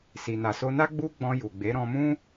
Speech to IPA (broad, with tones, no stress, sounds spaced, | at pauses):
s i˨ n a˨ s o˧ n a˦ ɡ͡b u˦ ɡ͡b ɔ̃˧ j u˨ ɡ͡b e˨˦ ɾ ɔ̃˧ m ũ˦